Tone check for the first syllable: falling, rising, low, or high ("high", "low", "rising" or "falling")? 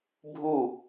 falling